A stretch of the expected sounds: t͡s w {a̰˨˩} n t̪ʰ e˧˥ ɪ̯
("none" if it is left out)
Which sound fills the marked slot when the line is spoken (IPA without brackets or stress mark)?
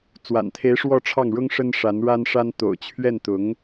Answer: a̰˨˩